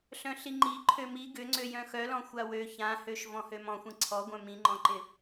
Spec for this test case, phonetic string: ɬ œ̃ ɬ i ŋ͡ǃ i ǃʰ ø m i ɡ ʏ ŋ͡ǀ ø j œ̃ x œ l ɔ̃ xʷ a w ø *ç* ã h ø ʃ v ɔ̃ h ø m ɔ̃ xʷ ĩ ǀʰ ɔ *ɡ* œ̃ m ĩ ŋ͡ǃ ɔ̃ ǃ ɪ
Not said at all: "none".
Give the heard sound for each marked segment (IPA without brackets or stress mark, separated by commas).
ç, ɡʷ